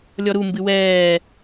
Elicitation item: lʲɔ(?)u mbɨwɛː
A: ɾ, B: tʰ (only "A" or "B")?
A